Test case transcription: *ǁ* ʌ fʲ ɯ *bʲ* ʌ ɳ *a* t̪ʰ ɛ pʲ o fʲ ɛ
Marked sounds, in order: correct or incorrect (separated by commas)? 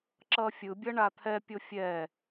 correct, correct, correct